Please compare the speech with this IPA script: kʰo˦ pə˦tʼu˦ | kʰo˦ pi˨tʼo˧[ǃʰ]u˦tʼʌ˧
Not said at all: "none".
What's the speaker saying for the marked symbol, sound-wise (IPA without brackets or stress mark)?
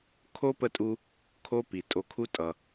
kʰ